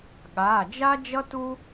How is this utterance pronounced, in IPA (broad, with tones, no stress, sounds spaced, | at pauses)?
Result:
ɠ aː˩˧˩ d͡ʒ a˥ d͡ʒ ʌ˥ t u˥